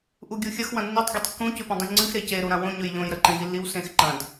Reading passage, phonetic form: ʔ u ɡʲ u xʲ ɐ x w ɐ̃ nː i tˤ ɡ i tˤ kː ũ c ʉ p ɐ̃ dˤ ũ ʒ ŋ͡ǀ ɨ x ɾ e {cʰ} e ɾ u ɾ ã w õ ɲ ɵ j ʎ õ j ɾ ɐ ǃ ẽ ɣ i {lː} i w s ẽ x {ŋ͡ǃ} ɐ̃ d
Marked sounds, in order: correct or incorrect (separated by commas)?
incorrect, correct, incorrect